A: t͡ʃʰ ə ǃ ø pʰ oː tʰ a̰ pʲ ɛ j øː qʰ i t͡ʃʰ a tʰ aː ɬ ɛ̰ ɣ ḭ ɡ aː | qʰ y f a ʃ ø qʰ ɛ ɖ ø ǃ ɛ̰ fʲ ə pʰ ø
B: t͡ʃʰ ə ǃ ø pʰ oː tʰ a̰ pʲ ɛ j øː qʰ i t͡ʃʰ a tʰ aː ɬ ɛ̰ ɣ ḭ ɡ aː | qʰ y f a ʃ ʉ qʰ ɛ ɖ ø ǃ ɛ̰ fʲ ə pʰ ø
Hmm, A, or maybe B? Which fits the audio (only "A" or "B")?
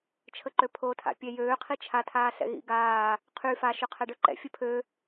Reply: A